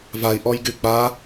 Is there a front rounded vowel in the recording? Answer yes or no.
yes